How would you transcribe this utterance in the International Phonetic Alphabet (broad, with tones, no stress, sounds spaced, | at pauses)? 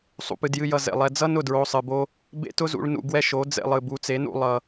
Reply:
sˤ ṵ˨ p ɨ˨ d j ɨ˧ j ʌ˨ z ḛ˨ lˠ ɛ˧ d͡z ʌ˦ n ʊ˦˨ d ɹ o˧ sˤ ɨ˨ b o˦ | b ḛ˦ t ʊ˦ z ṵ˧ ɭ n ṵ˧ ɡ w ɛ˦ ʃ o˨˦ d͡z ḛ˧ lˠ ɨ˨ b u˨˦ t͡s e˨˦ n ṵ˧ lˠ ʌ˧